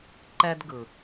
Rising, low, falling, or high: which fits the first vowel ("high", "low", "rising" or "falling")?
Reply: high